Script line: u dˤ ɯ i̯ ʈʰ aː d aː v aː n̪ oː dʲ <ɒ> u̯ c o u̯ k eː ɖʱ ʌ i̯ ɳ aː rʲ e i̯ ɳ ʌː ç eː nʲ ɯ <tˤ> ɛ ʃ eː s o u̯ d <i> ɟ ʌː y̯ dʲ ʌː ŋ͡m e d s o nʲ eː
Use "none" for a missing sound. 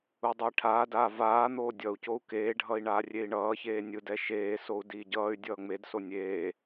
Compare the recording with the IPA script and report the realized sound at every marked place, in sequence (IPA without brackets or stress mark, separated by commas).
ʌ, d, iː